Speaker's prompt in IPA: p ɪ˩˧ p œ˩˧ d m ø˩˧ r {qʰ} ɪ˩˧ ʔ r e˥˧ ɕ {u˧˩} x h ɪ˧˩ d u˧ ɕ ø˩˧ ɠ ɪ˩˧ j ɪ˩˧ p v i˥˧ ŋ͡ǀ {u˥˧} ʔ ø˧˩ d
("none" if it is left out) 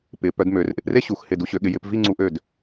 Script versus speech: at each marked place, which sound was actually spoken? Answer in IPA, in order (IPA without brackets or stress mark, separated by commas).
ʔ, u˧˩, u˧